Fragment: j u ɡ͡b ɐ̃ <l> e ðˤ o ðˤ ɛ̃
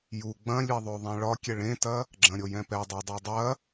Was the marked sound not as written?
yes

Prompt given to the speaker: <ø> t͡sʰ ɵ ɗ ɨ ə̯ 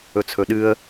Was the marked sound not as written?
yes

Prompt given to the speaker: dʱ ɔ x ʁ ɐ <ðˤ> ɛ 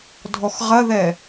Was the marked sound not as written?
yes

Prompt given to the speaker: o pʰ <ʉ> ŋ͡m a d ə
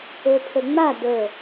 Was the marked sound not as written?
yes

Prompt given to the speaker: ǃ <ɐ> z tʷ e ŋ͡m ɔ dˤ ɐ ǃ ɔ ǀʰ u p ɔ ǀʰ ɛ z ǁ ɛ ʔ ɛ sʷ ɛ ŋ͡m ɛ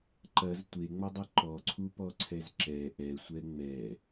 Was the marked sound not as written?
no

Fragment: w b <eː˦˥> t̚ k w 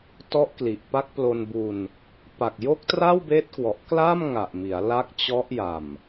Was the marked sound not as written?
no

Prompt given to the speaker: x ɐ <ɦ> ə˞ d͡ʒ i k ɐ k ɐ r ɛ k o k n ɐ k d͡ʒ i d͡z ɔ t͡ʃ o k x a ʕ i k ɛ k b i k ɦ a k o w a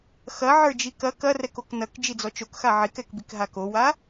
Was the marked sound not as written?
yes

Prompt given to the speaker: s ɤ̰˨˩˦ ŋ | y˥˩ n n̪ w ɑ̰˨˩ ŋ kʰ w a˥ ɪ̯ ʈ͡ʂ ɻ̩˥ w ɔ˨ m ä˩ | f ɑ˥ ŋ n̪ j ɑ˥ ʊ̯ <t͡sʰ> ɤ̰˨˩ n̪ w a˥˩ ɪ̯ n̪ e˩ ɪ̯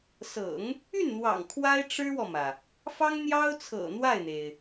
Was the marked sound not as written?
no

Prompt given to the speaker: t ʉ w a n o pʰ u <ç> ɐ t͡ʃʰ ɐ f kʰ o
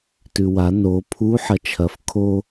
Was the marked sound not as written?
yes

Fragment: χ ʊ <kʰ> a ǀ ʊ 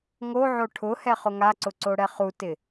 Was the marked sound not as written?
yes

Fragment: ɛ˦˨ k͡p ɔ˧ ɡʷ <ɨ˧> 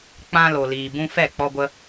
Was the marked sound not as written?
yes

